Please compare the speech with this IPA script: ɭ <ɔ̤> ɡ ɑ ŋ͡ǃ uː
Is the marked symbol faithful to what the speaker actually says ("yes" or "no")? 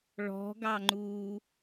yes